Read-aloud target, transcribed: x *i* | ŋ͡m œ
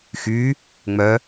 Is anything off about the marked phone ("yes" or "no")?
yes